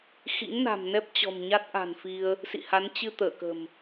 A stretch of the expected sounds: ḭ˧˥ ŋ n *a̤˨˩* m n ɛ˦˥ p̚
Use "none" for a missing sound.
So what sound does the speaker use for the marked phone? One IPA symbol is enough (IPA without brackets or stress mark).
a̤˨˩